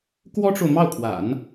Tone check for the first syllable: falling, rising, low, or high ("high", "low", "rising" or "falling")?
high